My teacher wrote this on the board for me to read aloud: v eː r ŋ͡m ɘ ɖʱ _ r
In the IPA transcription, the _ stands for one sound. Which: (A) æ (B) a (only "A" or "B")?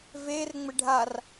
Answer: B